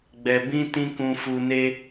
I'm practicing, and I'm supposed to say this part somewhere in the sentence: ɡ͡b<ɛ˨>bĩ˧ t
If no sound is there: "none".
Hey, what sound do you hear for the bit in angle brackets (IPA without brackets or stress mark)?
ɛ˨